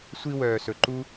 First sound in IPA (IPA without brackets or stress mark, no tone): sʷ